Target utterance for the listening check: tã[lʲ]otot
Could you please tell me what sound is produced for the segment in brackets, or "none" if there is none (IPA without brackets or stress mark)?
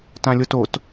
lʲ